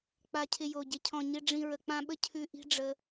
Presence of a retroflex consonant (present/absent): present